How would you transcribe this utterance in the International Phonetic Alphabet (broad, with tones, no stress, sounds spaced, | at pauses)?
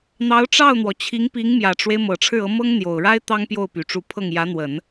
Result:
n̪ ɑ˧˥ ʊ̯ ʈ͡ʂ ɑ˥˩ ʊ̯ n̪ w ɔ˩ t͡ɕʰ i˧˥ ŋ p i˧˥ ŋ m j ä˨˩ ʈ͡ʂ w e˦ ɪ̯ m ɤ˨˩ ʈ͡ʂʰ ɻ̩˥˩ ɤ˧˥ m ɤ˥ ŋ n̪ j o˨˩ ʊ̯ ɻ a˥ ɪ̯ t̪ ɑ˥ ŋ p j o˥˩ ʊ̯ p y˨˩ ʈ͡ʂ u˧˥ pʰ ɤ˥˩ ŋ j ä˧˥ n̪ w ə˨˩˦ n